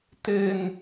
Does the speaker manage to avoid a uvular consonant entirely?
yes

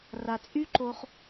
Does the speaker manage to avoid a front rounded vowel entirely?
no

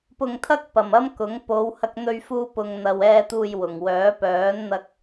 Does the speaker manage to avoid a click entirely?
yes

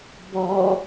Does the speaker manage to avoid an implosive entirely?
yes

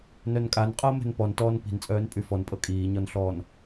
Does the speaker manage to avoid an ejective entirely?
no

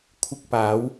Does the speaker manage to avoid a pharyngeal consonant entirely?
yes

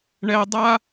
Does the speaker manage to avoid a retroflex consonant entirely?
no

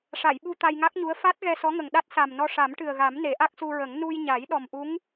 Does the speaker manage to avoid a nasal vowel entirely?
yes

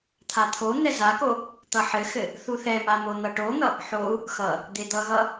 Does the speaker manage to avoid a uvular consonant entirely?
yes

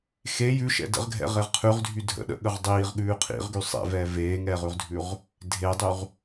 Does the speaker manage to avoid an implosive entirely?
no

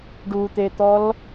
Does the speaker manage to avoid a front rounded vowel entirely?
yes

